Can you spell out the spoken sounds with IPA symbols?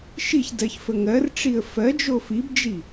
ʃ i ç d ɜ ç f ə ŋ ɜ r ʈ͡ʂ i ə̯ f ɜ d͡ʒ o f i b d͡ʒ i

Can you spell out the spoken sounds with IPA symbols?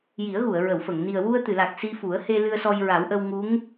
j i˨˩˦ ə̯ ɣ u˨˩˨ ə̯ ɹ ə˨˩˨ w f ə˨˩˨ ŋ n i˨˩ ə̯ w u˧ ə̯ t̪ ɨ˨˩˨ l a˨˩ k̚ s i˧ f u˨˩˦ ə̯ h e˧ l ɨ˧ ə̯ s ɔ˧ j ɹ a˨˩˦ w ʔ ə˧ w ŋ u˧˥ ŋ

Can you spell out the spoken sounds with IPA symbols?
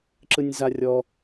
ǁ ɯ nʲ z a rʲ ɔ

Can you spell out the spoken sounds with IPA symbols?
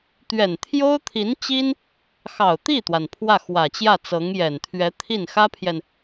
t̪ ɥ ɛ˨˩ n t̪ʰ j o˥ ʊ̯ t̪ʰ i˧˥ n t͡ɕ i˥ n | x ɑ˨˩ ʊ̯ t̪ i˥˩ t̪ w a˩ n pʰ w ä˥˩ x w ä˨˩ t͡ɕ j ä˥˩ t͡s ɤ˧˥ ŋ j ɛ˨˩ n t̪ʰ ɥ ɛ˧˥ t̪ʰ i˥˩ n x ä˥ pʰ j ɛ˨ n

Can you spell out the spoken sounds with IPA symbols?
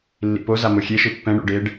lː ḭ p o z a m o xʲ e ʃ ɯ pː ɛ̃ ɳ ṵ ɖ e ɖ

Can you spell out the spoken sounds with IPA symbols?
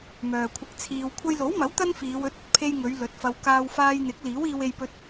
m œː˨ kʷʰ ɪ˧ k̚ t͡sʰ iː˧ w kʷʰ ɐ˧ j l o˨˥ w m ɐ˨˥ w t̪ ɐ˥ n f iː˨˧ w ɵ˨˥ t̚ ɐ˨ t̚ pʰ e˧ j ŋ ɵ˨˧ ɥ l ɵ˨˥ t̚ f ɐ˧ w k aː˧ w f aː˧ j n̪ ɪ˨˥ k̚ l iː˨˥ w iː˧ w e˧ j p ɵ˧ t̚

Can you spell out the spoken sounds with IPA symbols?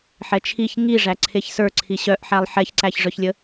ħ ɛ t͡ʃʰ i ç ŋ i ʐ æ ǀʰ e ç s ə˞ ǀʰ i ɕ œ ʔ ħ æ lˠ ħ ɛ ç ǀ æ ç ʐ œ ç lʲ ə

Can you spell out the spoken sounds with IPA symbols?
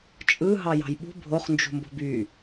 t͡ʃʼ ɯ ɦ ɑ j ɑ̤ j ɓ ṳ bʱ o χ n d͡ʒ ṳ m b o̤ b y

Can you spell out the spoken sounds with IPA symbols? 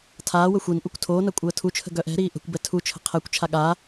tʰ aː w ə xʷ i n ʔ u kʷ tʰ oː n a kʷʼ əː tʰ u t͡ʃʰ ə̤ ɡ œ ʔ ɛ̤ ɾ iː ʔ ə̤ kʷ b ɛ tʰ u t͡ʃʰ ə̤ qʰ ɛ kʷ t͡ʃʰ a ɠ a

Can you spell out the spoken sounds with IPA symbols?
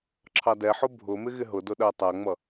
ǁʰ ɑ d ɛ ħ ʊ bʱ ʊ m ɪ ɣ ɪ ɦ ʊ d ʊ ɗ ɜ tˤ æ ŋ͡m ʌ

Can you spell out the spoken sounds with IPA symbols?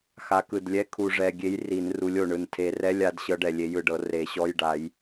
x a˨˦ k ɯ˨˩ d lʲ ɛ˧˥˧ kʰ u˨˩ ʐ ɛ˨˩ ɡʲ e˨˦ j r i˨˩˦ n r u˨˦ lʲ o˨˩ ɳ ɯ˨˩ n tʰ e˨˩˦ r ɛ˧˥˧ lʲ a˨˦ d ɕ ɤ˨˦ ɖ ɛ˨˩ lʲ e˨˦ j ɯ˨˩ ɖ ɤ˨˩˦ r e˨˩˦ ɕ ɔ˧˥˧ j ɖ a˨˩˦ j

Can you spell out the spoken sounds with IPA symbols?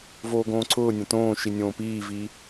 v oː ɡ õː ǀʰ ʊː nʲ ã t õː ʃ i nʲ õː p iː v iː

